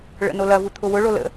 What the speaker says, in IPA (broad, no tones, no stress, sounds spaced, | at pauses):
ɭ ə̰ n o l ɐ v u t̪ʰ ʊ w ʊ ɭ o l ə̰